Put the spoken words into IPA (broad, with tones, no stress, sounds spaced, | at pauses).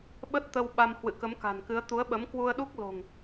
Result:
ɓ ə˦˥ t̚ t̪ ə˧ w ɓ a˧ m h w ɨ̰˧˨ k ə˨˦ m k a̤˨˩ n k ɨ˨˦ ə̯ t̪ u˨˦ ə̯ ɓ ə˨˦ m k w u˧ ə̯ ɗ u˦˥ k̚ l o̤˨˩ ŋ